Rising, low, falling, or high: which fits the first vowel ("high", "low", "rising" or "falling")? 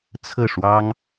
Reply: falling